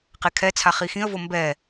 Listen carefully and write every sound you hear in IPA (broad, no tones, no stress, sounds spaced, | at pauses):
q e kʰ ɛ t͡sʰ a χ i x ĩ ə̯ v o m b ɛ